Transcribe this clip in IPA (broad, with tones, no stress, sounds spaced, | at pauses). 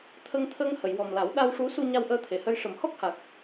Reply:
t̪ʰ ə˧ ŋ t̪ʰ ə˧ ŋ h ə˨˩˨ j w ɔ˨˩ m l a˨˩˦ w ɗ a˧ w ʂ u˧˥ s u˧ ɲ a˧ w ʔ əː˧ t̪ʰ e˨˩ h ə˧ j ʂ ə˨˩ m h ɔ˦˥ k̚ h a˨˩ k̚